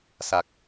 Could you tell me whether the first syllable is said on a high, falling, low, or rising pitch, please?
low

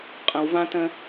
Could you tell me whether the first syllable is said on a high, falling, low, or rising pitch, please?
low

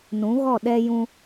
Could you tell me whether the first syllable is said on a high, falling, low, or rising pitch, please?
rising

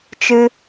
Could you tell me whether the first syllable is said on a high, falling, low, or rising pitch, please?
high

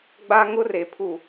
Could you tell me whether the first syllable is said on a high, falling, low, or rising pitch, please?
high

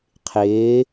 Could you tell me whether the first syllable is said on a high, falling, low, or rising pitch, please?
rising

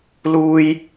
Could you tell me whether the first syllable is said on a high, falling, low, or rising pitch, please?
high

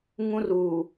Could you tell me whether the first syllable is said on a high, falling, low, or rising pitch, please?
high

